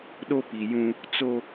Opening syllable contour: high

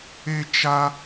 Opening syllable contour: high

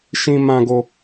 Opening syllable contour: high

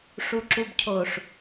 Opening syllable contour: low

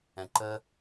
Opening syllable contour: low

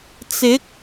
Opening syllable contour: rising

